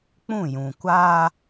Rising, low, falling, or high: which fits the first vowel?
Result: falling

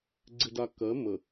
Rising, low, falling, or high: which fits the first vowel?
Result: low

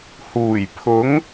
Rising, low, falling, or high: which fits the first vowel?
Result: low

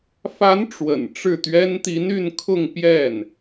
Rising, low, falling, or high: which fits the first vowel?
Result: rising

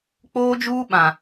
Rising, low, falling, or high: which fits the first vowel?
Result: high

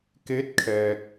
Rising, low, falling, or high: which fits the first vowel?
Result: rising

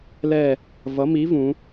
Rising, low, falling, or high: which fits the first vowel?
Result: falling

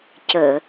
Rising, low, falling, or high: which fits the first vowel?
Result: low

